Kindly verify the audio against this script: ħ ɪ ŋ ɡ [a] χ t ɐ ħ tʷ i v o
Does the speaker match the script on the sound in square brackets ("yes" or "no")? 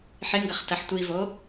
no